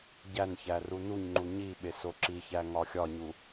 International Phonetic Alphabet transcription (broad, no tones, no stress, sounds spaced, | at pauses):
ɟ æ n ç æ r u n u ɲ ŋ͡ǃ u ɲ i ɓ e s o ǁ i ç æ ŋ ɒ xʲ ɒ ɲ u